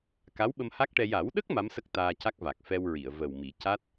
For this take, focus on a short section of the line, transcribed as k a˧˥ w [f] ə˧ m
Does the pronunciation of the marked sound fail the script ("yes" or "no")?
yes